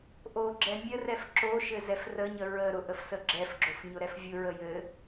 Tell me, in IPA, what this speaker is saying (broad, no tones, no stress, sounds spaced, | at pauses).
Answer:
ʔ o ɡ͡ǁ ɛ mʲ ə r ɛ f ǁ o ʃ ɘ z ɛ f r ə ɲ ə ɹ ə ɾ ʊ ʔ ə f s ə ɡ͡ǁ ɛ f ɡ͡ǁ o f ɲ ʊ ɾ ɛ f vʲ ʊ ɹ ə j ɘ